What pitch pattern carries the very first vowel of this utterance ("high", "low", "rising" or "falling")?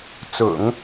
low